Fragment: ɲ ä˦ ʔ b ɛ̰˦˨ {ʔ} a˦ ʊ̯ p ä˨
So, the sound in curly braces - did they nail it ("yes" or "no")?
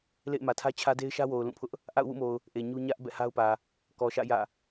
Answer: no